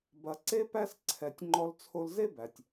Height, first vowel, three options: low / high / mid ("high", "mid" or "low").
low